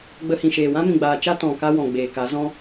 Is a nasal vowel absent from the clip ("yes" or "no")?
no